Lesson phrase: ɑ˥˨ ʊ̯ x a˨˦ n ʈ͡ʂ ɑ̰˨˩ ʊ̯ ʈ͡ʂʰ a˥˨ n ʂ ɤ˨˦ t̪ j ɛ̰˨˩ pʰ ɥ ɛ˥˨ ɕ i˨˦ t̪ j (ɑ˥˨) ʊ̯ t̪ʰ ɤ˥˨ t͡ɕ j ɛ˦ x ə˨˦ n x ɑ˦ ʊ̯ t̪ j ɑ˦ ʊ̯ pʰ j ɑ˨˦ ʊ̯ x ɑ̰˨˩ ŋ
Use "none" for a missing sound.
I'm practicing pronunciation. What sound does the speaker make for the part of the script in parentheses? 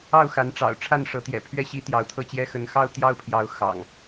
ɑ˨˦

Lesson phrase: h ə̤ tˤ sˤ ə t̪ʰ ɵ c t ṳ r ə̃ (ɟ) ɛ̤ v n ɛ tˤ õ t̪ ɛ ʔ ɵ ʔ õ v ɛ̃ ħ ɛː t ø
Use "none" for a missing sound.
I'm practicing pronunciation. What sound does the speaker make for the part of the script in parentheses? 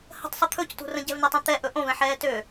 ɟ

